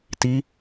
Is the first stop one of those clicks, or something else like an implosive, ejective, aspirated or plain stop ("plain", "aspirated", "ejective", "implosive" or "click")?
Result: plain